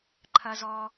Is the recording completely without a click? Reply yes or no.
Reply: no